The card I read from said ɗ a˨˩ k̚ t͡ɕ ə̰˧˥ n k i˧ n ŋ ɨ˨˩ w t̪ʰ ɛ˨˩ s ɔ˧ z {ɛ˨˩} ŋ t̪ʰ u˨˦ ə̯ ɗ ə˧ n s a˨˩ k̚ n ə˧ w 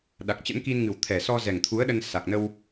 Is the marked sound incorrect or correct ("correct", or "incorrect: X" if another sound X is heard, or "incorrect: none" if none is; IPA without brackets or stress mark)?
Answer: correct